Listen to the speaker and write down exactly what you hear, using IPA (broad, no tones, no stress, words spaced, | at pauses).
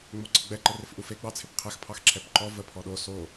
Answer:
ŋ͡moǀɪɡ͡bɛ ǃərɪfʔufe ɡ͡bɑt͡sʰɪpqʰɛx pʰɑxǁʰɛpǃɔ və pʰɔɗo so